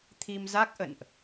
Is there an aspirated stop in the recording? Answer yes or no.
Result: yes